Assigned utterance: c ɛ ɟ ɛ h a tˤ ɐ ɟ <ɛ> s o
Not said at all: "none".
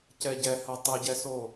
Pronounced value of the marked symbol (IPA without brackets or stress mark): ɛ